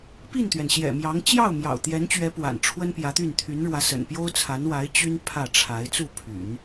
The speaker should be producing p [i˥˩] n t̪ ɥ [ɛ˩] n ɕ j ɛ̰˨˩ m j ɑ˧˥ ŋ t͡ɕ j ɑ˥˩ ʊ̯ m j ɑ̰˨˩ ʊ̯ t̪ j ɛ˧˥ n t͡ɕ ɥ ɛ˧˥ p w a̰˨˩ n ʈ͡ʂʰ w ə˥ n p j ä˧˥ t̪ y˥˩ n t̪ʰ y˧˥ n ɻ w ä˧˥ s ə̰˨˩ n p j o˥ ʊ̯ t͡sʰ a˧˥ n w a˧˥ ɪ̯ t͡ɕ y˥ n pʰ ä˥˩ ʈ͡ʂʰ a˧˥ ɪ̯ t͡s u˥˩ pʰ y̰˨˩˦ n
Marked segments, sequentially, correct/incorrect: correct, correct

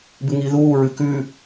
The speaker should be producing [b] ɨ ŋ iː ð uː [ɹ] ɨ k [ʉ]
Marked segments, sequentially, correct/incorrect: correct, correct, correct

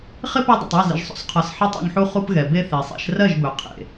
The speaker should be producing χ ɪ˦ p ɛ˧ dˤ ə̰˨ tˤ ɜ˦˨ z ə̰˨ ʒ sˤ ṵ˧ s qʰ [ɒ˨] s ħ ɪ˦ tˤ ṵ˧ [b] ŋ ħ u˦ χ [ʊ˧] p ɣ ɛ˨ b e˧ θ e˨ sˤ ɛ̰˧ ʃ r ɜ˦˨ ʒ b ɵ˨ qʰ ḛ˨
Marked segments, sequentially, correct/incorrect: correct, incorrect, incorrect

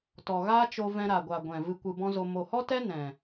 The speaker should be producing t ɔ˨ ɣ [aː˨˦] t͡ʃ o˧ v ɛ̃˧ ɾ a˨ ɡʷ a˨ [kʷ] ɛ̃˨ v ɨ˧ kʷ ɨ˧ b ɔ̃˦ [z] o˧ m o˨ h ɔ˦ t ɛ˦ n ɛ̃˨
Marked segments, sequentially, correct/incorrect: incorrect, incorrect, correct

